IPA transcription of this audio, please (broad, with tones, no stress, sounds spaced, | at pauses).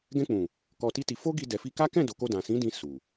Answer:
ɡ ɛ̃˧ k͡p ũ˨ | k ɔ˧ t i˦ t i˧ f o˦ ɡ i˧ d ɛ˨ f i˧ k a˦ k ɛ̃˦˨ d o˨ k o˧ d ã˨ s ĩ˨˦ d ĩ˧ s u˨